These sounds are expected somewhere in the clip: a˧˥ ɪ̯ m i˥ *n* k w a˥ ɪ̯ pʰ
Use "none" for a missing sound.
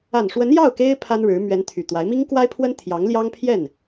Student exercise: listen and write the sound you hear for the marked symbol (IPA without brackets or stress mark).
ŋ